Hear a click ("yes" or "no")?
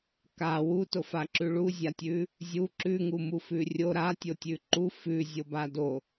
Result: yes